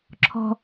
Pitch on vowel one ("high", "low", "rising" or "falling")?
high